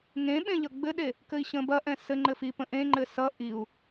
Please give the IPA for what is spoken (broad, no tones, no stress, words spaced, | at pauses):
ŋẽɓẽ ʎʌɡ͡bɘɗe | kɘi̯ɕə̃bɐʔɛ̃ sɘ ŋ͡ǃɘfipə̃ ʔẽŋ͡ǃɘ sʌ ʔiu̯